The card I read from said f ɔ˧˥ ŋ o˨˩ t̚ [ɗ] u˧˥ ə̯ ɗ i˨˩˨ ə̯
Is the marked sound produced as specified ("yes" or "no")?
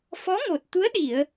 no